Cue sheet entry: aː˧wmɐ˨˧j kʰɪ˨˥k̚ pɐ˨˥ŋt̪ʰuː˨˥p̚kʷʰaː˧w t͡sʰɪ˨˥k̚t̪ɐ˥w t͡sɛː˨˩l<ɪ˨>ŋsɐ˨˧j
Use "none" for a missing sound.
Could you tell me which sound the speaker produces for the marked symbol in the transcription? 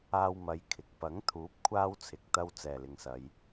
ɪ˨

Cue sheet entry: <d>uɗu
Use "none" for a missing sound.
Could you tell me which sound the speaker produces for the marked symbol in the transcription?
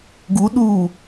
ɡ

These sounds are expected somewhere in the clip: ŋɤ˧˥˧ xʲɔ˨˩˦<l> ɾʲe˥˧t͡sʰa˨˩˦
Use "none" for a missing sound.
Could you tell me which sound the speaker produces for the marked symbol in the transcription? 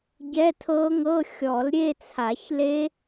l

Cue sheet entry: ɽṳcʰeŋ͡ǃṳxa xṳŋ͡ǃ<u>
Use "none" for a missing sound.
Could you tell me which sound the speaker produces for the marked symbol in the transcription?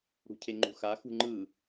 ɯ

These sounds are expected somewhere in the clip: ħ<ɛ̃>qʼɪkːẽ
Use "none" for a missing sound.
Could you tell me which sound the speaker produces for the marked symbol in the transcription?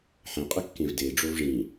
ɛ̃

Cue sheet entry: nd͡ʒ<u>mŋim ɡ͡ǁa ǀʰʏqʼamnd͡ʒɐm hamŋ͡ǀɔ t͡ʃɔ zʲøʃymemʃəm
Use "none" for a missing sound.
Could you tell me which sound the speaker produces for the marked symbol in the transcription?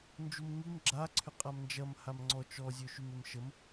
u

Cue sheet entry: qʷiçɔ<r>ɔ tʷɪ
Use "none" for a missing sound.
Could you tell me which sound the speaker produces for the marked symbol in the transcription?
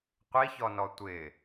n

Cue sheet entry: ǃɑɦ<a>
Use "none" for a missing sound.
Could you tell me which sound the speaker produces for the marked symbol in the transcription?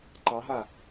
a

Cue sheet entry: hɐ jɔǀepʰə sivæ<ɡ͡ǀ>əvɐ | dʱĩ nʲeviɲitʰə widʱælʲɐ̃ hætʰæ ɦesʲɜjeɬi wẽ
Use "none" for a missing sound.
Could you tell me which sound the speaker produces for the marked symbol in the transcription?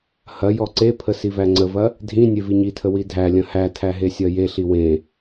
ŋ͡ǀ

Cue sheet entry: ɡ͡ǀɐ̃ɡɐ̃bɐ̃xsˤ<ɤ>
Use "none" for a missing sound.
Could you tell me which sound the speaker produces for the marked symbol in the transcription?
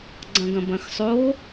o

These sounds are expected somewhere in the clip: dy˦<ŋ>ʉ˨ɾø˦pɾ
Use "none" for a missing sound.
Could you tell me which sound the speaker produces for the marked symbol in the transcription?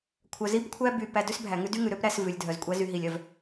ŋ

